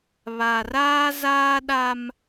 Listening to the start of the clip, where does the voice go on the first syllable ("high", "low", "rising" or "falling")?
low